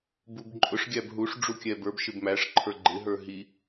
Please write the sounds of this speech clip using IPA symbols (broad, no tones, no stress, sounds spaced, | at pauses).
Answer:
b u b ǃʼ ʊ ʂ ɡʲ æ b ɦ u ʂ ɖ͡ʐ u kʲ ɛ b ə˞ b ʃ ɪ b m æ ʂ ǃʰ ə˞ ɡ͡ǃ ɪ ɦ ə˞ ɦ i